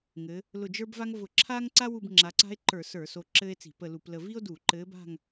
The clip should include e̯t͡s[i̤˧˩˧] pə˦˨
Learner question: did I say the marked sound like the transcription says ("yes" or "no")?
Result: yes